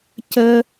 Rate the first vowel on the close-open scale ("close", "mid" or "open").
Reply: mid